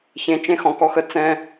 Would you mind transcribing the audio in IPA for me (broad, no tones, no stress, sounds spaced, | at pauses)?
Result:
ç ẽ t͡ʃ ẽ x ɔ̃ k ɔ x ə t͡s ɛ̃